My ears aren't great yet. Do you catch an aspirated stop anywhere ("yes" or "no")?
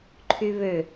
yes